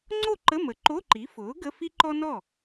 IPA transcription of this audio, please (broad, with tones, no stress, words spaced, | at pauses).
ŋ͡ǀo˥˩ǃə˧˥˧ mə˩˥ǃo˧˥˧ǃi˩˥fʊː˩˥ ɡə˧˥˧fi˥ǃɔ˥ nɔ˥˩